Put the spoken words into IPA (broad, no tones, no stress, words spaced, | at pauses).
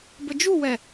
bəd͡ʒuwɛ